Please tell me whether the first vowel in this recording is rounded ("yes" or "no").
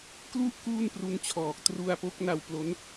yes